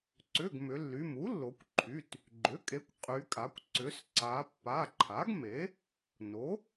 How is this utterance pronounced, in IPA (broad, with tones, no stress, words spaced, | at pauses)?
ǀʏ˩˧˩ɡ mʏ˩˧lːy˩˧˩m u˩˥lːo˩˧kʷǃʰy˩˧˩t | ɡ͡ǃʏ˩˥kʼe˩˥kʷ qʼy˩˧kʼa˩˧kʷ ǀʏ˩˧sǀa˩˧ pːa˩˧˩ǃʰa˩˥ɡme˩˥ | no˩˥